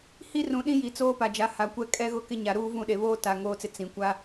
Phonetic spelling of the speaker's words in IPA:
h i˦ r ũ˨ ɗ ĩ˦ j i˨ t͡s oː˦ p a˨ d͡ʒ a˨˦ h a˨ kʷ ɛ˦ kʼ ɛ˦ ɣ ʊ˦ k ɪ˦ ɲ a˨ ɾ uː˦ v ũ˦˨ ɗ e˨ β oː˦ t a˨ ŋ oː˨ t͡s ɪ˨ t͡s ĩ˨ kʷ a˦

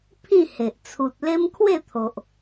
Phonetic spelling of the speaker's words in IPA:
pʰ ĩ˥˧ h e˨ ʔ t͡sʰ u˨ t̚ l e˦ m kʰ w e˥˧ t̪ʰ o˨ ʔ

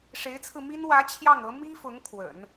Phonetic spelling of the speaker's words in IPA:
ʂ e˧˥ ɪ̯ t͡sʰ ɹ̩˧ m i˥ n w ä˧˥ t͡ɕʰ j ɑ˥˩ ŋ ɤ˧˥ m i˥ f ʊ˧˥ ŋ kʰ w ə̰˨˩˦ n

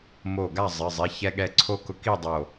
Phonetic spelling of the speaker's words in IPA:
m o˧˩ ɡ a˥˨ zˤ ɪ˩˧˩ zˤ i˩˧˩ ç ɛ˧ ɠ ɛ˧˩ ǀʰ o˧ k ʊ˨˥ k i˥˨ dˤ o˧˩

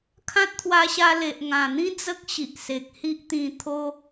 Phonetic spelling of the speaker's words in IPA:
kʰ ã˦ t̚ t̪ʰ w a˧ ɕ a˧ l e˨ ʔ ŋ ã˨˩ n̪ ĩ˦ d͡z ə˦ k̚ ɕ i˨ ʔ s e˨ k̚ h i˦ ʔ t̪ ĩ˧ t̪ʰ o˦

